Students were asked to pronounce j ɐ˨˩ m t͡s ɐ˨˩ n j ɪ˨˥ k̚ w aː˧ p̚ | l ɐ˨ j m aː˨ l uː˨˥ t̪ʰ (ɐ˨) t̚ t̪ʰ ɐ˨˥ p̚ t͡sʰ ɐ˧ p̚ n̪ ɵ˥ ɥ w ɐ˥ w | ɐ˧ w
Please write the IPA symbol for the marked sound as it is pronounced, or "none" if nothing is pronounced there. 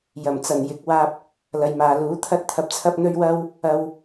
ɐ˥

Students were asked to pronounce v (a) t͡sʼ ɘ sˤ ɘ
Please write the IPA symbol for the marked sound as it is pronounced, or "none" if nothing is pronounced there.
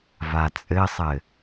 a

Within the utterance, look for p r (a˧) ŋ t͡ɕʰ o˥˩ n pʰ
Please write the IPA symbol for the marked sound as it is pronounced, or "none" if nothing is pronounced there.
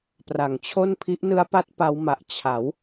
a˨˩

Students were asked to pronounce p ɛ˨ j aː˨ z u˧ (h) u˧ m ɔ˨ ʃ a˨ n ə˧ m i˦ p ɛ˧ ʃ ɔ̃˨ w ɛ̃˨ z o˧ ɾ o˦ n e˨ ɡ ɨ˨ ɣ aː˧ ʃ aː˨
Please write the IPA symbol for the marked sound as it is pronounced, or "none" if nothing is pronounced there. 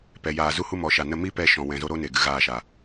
h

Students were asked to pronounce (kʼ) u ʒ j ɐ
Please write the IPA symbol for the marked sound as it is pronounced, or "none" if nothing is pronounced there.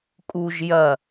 kʼ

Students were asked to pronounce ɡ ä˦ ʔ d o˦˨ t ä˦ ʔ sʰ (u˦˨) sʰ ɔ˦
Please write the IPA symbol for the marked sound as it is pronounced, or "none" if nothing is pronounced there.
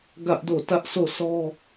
o˦˨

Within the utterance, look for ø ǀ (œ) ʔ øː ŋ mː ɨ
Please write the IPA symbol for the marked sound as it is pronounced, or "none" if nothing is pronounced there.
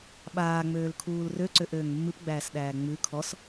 ø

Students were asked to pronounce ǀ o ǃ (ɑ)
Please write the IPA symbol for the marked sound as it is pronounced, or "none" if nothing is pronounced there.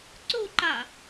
ɑ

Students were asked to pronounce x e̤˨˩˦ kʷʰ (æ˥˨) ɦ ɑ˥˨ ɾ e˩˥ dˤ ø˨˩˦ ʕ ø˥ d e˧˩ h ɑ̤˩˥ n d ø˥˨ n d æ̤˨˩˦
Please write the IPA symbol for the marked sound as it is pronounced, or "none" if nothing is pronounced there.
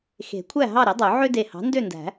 æ˥˨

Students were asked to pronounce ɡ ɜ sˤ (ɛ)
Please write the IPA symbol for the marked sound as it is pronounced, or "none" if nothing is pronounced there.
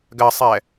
ɛ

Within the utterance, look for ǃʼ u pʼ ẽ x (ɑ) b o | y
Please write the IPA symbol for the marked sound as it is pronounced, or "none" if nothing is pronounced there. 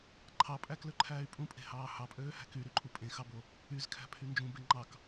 ɑ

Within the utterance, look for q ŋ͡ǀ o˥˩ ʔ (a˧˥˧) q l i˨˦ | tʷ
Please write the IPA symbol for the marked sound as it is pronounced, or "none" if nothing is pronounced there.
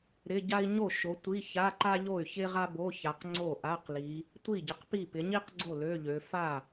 a˧˥˧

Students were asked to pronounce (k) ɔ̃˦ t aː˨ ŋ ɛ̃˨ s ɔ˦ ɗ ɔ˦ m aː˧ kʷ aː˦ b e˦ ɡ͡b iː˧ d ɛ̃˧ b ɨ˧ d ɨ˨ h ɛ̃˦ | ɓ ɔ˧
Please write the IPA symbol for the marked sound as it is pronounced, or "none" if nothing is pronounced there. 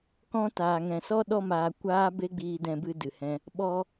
k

